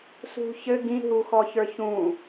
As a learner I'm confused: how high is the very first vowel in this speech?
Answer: high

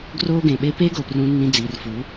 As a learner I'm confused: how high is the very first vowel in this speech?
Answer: mid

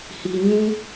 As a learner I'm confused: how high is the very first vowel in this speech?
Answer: high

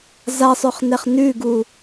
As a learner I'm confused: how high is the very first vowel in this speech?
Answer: low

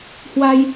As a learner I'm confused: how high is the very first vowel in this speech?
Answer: low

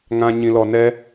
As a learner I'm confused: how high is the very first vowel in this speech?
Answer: low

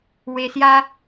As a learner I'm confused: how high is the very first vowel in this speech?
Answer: mid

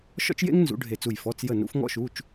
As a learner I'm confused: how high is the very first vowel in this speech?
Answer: mid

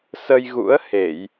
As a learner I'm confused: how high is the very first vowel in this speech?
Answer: mid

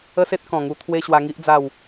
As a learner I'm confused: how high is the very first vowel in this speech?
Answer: mid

